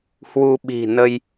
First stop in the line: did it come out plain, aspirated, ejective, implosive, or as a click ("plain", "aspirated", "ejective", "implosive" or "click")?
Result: implosive